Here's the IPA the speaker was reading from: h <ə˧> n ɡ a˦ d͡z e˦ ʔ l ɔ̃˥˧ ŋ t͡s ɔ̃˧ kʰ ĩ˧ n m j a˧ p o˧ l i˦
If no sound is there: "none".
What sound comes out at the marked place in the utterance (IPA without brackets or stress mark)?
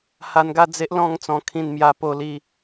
a˧